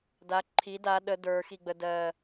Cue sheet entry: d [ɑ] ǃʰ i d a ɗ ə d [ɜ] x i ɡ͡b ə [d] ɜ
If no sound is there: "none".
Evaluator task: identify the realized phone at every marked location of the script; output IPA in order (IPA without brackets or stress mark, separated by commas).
a, ə˞, d